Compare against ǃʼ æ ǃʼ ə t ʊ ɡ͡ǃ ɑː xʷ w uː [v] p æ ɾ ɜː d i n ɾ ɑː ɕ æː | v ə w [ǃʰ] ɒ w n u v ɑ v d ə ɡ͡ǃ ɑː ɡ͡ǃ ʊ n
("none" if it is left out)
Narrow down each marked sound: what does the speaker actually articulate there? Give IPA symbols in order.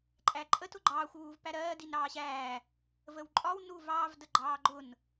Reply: v, ǃʼ

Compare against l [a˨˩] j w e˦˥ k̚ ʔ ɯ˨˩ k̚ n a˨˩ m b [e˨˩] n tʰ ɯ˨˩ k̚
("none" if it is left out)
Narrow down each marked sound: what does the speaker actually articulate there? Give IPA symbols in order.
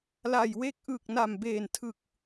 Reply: a˨˩, eː˨˩

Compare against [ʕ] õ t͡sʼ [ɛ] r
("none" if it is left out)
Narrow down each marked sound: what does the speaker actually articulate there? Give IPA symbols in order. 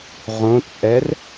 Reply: ʁ, ɛ

